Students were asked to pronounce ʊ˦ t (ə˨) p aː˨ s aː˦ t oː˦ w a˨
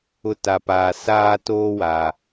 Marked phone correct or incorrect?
incorrect: a˨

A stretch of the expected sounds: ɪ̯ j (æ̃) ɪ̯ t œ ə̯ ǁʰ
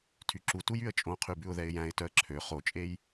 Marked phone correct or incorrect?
correct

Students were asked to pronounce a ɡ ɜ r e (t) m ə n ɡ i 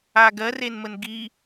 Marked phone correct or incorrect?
incorrect: n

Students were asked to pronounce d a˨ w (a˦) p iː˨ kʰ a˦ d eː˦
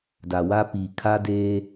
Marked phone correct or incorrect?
correct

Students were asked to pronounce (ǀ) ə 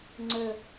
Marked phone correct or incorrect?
incorrect: ŋ͡ǀ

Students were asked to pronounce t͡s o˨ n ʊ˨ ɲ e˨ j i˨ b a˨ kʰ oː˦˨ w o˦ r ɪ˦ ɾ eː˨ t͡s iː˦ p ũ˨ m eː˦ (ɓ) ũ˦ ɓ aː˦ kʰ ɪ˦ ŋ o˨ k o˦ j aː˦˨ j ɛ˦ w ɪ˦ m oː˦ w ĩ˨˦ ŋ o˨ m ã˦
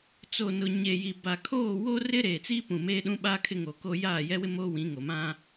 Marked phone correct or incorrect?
incorrect: ɗ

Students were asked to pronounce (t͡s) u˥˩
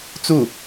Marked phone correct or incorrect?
correct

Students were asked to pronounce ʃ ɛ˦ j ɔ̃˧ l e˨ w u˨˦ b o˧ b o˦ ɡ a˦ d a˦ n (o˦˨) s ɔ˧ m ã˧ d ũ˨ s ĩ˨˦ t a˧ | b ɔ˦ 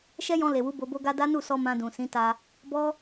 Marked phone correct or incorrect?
incorrect: u˦˨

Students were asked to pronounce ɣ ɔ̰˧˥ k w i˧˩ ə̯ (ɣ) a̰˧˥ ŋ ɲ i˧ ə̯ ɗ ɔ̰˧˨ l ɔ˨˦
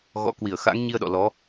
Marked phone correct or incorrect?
incorrect: x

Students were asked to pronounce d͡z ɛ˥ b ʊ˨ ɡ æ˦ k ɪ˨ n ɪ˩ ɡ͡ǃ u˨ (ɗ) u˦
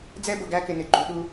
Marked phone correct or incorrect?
correct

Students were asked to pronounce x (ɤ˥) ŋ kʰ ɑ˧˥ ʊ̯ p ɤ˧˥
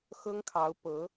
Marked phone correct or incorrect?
correct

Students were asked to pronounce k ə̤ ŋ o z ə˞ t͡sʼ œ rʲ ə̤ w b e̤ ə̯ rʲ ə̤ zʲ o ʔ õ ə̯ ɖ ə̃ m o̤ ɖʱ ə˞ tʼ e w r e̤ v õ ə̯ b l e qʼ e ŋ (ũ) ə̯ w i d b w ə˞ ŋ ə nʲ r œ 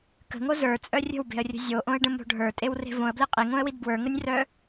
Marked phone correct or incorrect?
incorrect: õ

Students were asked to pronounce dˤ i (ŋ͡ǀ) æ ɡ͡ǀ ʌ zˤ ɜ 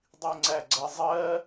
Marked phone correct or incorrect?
correct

